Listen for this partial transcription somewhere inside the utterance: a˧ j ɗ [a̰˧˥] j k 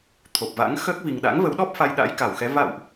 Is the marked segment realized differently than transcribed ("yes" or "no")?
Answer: no